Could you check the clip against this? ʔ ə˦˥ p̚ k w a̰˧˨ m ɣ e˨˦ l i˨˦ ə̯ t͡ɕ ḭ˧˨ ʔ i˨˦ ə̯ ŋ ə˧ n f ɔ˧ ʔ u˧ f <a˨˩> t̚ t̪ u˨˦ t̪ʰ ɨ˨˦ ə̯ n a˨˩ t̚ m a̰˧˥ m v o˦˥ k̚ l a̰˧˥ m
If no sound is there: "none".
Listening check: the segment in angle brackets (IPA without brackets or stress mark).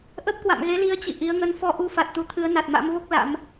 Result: a˨˩